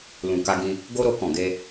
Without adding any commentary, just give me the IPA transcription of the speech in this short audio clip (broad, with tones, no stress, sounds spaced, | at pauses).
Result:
l ũ˨ k a˧ ɡ ĩ˧ | ɡ o˧ ɾ o˧ k ɔ̃˨ ɡ e˧